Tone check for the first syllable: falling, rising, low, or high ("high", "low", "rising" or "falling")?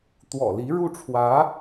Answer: low